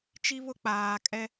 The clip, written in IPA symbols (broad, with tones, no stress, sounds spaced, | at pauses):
t͡ʃ i˦ β ʊ˦ k͡p aː˨ kʼ ɛ˦